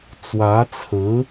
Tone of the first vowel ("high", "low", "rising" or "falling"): rising